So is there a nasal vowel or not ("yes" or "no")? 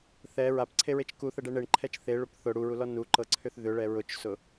no